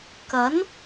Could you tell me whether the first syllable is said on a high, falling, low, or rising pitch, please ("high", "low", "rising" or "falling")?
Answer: rising